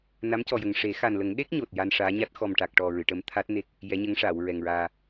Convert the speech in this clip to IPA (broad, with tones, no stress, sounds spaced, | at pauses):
n a˧˥ m c ɔ˨˩ j ə˨˩ ŋ ʂ e˨˩˦ x a˨˩ n l ə˨˩˦ ŋ ɗ e˦˥ k̚ ɲ o˨˩ t̚ j a˧ n ʂ aː˧˥ ɲ a˦˥ t̚ x ɔ˨˩ m ʈ a˨˩ k̚ ʈ ɔ˨˩ ɹ ɨ˨˩˨ ʈ ə˧˥ m t̪ʰ a˦˥ t̚ n e˦˥ k̚ | j ɛ˧˥ ɲ ə˧˥ ŋ ʂ aː˨˩˨ w ɹ ɛ˨˩ ŋ ɹ aː˧